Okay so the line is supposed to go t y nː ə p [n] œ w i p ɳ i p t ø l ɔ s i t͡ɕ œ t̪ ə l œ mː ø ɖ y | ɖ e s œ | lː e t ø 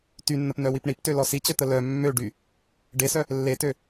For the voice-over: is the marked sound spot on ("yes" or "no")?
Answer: yes